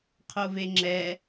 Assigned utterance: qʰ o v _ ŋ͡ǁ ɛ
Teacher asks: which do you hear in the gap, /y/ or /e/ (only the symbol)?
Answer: e